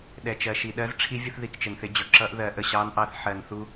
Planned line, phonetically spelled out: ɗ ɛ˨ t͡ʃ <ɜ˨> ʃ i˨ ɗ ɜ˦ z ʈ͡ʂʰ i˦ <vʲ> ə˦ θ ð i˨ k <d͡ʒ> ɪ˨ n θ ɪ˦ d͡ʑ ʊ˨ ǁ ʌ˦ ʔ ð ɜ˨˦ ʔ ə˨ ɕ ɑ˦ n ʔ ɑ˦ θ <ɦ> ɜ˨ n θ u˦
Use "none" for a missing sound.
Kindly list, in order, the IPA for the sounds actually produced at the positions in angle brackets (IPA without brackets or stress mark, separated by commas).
ɜ˨, vʲ, t͡ʃ, ħ